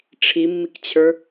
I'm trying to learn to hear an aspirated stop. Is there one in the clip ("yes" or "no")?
yes